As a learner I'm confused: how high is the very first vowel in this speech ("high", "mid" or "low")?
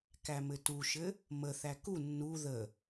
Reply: low